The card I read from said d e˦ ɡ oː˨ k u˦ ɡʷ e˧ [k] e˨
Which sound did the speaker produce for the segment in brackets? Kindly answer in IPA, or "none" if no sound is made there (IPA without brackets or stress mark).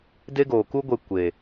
kʷ